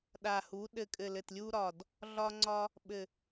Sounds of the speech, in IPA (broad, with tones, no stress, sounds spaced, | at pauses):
ɗ a˨˩ h u˩˧ ɗ ɘ˨˩ kʼ ɘ˨˩ l ɘ˨˩ t lʲ u˧ ɾ ɒ˨˩ d | ɮ ɒ˧ ŋ͡ǀ ɒ˧ | ɓ ɘ˨˩